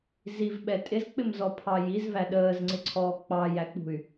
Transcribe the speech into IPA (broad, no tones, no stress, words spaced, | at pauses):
zivɓɛ tʼɪzk͡pɪmzɔ pʰɑjiz væɗəːzŋ͡ǀɪǀʰɔː k͡pɑjæk͡pṳy̯